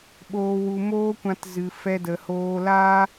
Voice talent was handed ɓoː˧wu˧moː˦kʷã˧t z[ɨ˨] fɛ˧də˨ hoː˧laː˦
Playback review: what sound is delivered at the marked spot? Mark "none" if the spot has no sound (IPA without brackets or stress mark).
ɨ˨